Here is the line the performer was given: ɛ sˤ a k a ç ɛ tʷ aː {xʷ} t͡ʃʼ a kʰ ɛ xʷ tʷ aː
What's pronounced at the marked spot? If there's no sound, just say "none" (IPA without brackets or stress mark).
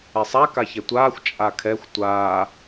xʷ